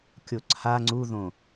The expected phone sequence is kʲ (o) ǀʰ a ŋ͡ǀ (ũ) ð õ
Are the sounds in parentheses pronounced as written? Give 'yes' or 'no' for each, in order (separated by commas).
yes, no